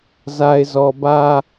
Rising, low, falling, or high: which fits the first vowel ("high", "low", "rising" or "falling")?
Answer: low